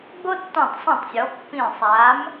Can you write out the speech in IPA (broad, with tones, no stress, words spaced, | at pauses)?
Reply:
ɡ͡bo˦tːɔ̃˧˩tˤsˤã˧˩tˤsʲɔ˩˧ pːĩ˧˩sˤa˨˥m